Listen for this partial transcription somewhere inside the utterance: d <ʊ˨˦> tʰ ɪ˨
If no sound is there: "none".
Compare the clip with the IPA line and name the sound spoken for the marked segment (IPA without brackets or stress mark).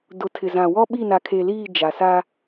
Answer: ʊ˨˦